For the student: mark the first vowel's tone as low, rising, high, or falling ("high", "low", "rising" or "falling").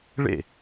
falling